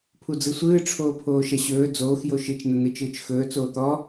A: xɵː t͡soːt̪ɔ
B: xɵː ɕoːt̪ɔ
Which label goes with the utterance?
A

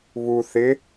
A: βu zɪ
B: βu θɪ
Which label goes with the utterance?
B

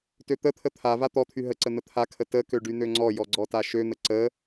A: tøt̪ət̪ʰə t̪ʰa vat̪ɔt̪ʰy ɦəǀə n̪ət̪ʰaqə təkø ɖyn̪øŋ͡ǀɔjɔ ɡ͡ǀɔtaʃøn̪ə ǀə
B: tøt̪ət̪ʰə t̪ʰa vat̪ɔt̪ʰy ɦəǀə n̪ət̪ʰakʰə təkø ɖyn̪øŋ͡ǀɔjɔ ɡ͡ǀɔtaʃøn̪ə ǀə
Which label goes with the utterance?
B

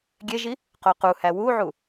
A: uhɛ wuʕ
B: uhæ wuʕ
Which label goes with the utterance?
B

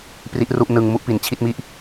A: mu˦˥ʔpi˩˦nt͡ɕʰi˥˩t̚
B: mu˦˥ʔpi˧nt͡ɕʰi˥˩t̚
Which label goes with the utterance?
A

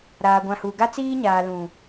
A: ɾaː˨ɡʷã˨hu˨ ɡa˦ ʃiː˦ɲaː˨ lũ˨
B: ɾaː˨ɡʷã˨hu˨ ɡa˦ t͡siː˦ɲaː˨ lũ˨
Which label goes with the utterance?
B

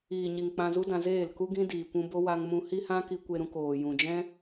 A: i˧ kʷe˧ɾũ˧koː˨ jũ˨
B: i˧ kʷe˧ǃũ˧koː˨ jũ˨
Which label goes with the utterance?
A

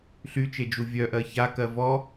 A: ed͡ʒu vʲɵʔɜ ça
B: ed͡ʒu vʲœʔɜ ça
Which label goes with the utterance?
B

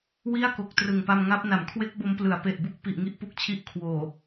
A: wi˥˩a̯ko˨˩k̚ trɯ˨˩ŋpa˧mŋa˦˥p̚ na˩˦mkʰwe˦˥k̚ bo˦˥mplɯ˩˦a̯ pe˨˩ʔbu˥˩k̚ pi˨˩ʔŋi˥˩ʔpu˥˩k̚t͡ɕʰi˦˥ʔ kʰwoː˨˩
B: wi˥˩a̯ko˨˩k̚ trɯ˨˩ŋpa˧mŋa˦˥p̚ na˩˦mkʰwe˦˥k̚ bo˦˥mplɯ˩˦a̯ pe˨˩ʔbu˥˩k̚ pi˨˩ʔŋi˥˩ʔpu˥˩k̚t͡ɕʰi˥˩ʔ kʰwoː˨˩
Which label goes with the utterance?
A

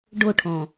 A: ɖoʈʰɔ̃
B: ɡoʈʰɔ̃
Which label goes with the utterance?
A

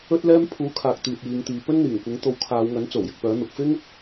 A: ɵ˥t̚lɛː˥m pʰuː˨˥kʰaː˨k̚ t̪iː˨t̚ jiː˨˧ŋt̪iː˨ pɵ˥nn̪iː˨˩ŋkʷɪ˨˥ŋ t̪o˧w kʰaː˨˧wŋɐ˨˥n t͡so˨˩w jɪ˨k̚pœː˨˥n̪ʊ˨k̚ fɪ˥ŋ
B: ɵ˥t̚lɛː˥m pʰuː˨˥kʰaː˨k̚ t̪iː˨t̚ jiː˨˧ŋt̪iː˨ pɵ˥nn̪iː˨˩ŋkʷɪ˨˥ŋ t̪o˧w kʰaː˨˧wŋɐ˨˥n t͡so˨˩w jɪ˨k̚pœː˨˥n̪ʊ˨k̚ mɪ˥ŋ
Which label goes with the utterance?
A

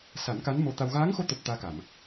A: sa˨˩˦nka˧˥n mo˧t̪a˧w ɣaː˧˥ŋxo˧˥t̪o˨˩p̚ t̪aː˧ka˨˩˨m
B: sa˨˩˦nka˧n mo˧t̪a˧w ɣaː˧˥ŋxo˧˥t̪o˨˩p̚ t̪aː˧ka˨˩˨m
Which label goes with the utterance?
A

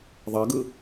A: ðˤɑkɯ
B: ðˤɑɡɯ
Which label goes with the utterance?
B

